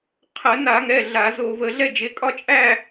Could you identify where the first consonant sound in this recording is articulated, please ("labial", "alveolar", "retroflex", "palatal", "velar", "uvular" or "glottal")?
uvular